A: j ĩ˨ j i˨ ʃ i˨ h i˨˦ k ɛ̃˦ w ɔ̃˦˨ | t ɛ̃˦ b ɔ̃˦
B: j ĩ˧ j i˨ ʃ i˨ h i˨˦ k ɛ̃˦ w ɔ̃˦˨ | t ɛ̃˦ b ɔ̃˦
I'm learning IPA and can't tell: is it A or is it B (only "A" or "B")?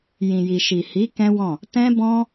A